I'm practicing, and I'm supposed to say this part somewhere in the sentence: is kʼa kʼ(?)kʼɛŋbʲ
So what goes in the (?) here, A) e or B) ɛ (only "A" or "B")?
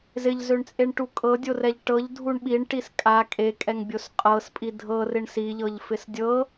A